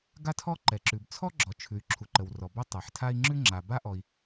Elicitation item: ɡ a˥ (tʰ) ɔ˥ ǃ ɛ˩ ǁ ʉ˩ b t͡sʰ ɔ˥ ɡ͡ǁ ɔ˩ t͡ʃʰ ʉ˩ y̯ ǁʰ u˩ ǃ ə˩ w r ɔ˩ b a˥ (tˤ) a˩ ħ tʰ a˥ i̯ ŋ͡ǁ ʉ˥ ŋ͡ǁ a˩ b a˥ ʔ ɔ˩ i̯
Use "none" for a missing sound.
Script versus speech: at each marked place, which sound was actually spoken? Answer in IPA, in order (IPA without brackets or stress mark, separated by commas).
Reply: tʰ, tˤ